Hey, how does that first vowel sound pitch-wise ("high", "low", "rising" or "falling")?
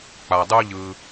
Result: low